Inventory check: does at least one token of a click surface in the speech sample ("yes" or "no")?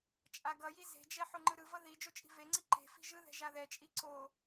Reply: yes